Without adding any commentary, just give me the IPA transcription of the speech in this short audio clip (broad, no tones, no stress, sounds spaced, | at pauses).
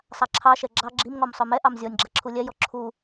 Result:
sˤ a ǁʰ ɑ ʃ ɛ ɡ͡ǁ ɑ ɡ͡ǁ i m ŋ ɔ m sˤ œ m ɛ ʔ ɑ m zʲ ɔ nʲ ɡ͡ǁ a ǁʰ u lʲ ɛ j ɔ ǁʰ u